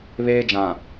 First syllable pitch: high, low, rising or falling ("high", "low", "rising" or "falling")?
high